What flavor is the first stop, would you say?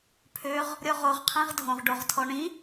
aspirated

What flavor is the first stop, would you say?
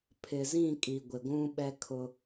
aspirated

